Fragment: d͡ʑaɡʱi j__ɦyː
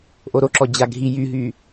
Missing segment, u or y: y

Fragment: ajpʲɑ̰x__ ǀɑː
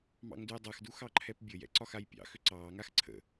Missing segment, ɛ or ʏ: ʏ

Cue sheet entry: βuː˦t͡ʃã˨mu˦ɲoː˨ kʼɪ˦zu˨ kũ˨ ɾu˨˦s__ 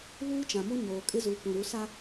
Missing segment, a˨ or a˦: a˦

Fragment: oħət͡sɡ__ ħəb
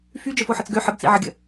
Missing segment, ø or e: ø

